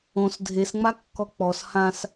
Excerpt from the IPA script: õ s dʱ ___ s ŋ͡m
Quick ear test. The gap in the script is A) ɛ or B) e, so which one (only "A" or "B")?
B